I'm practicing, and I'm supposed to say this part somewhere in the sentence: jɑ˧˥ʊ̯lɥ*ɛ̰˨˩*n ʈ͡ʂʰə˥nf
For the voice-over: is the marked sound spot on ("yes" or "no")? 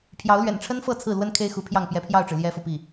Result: yes